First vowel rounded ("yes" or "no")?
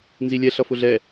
no